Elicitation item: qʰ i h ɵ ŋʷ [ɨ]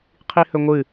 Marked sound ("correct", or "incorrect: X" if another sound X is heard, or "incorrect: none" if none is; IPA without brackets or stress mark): correct